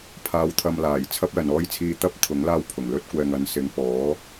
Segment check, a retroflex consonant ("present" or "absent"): absent